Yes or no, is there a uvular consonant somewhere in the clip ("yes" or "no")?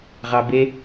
yes